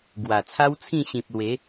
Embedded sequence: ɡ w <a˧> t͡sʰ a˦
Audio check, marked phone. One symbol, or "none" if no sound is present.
a˨˩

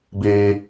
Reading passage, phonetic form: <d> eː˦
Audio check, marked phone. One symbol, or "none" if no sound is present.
b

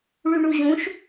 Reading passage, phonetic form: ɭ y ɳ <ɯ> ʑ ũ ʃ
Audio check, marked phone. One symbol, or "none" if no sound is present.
u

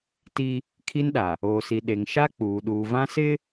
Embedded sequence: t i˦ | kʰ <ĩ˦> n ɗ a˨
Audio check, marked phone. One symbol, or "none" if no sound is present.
i˦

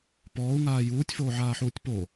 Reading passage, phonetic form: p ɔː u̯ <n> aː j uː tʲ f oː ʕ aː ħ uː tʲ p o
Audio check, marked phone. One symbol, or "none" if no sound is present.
ŋ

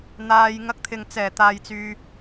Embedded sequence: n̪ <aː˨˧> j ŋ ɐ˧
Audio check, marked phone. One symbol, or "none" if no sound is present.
aː˧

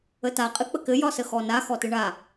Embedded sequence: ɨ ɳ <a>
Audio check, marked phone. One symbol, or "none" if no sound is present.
a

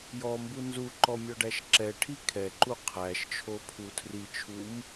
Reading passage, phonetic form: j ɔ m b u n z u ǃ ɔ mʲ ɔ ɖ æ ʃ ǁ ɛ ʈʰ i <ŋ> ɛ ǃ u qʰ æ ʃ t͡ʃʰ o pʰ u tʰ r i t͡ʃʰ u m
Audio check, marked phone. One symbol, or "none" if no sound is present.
kʰ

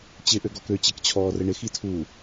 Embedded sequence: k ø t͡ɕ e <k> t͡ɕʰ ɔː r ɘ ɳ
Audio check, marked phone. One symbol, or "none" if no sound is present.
k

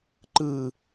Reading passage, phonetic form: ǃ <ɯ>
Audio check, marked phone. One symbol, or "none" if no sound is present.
ɯ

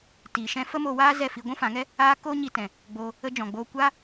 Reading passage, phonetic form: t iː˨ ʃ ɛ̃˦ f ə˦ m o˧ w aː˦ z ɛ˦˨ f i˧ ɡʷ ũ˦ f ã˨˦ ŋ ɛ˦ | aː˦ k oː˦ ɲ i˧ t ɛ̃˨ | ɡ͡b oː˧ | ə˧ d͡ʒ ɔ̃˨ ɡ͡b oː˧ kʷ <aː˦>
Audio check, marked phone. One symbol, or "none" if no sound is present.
aː˦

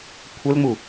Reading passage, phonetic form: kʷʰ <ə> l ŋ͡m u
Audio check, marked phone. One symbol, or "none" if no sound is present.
ə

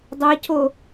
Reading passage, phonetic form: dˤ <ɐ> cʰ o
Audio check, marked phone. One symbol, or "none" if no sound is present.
ɐ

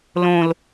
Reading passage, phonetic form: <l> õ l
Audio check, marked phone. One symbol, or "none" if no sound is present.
l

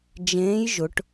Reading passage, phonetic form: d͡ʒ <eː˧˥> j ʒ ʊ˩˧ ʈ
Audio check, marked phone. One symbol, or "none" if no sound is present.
ẽː˧˥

